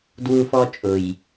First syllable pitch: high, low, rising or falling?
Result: high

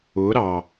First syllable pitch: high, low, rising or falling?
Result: rising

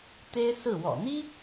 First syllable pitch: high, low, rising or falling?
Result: high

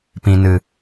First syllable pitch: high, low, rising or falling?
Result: low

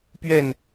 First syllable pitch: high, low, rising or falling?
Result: falling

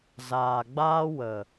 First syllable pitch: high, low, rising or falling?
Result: low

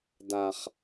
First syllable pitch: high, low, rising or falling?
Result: low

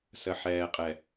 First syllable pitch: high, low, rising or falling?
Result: low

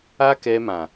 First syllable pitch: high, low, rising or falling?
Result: high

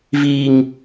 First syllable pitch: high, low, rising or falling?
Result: low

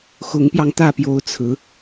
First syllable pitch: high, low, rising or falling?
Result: rising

